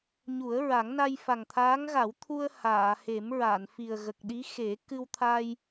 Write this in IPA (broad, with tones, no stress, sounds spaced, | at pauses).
ɲ u˨˩˦ ə̯ ɹ a˨˩˦ ŋ n a˧ j f a˨˩ ŋ t̪ʰ aː˧˥ ŋ ɣ a˨˩˦ w t̪ʰ u˧ ə̯ h aː˨˩˨ h e˨˩˦ m ɹ a˨˩˨ n f i˨˩ ə̯ ɣ ə˨˩ k̚ ɗ i˧˥ x e˨˩˦ k ɨ˧ w t̪ʰ a˧ j